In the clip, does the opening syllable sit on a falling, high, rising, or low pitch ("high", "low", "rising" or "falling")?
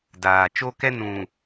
low